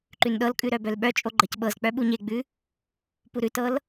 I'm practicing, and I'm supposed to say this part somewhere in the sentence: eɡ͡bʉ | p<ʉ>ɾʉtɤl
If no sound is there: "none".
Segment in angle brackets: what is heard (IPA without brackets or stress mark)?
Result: u